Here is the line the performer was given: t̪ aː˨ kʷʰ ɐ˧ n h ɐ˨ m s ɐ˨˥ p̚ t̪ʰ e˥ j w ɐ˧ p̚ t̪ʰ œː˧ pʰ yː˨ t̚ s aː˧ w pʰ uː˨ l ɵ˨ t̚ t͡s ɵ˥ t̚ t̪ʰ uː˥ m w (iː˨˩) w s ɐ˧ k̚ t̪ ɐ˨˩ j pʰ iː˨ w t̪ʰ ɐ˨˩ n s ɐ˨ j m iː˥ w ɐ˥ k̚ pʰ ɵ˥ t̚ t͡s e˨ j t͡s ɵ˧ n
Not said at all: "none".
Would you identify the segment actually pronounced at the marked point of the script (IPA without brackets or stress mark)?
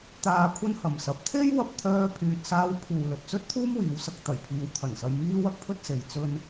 iː˨˧